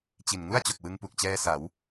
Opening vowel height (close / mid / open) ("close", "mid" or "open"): close